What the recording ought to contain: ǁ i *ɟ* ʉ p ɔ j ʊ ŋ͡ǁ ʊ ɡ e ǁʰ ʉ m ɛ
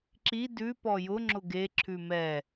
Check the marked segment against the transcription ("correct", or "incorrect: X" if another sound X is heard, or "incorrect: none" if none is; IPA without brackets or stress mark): incorrect: d